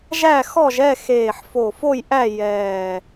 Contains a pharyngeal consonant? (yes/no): yes